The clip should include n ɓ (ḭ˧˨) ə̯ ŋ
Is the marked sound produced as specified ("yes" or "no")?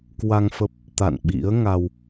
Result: no